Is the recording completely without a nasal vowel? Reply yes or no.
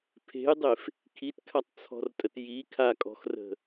yes